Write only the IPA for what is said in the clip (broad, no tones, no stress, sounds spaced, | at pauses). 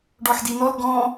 ɖ ɔ ħ d i n ɔ l ɡ ɔ̃